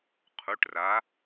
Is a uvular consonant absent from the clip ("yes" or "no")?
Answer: no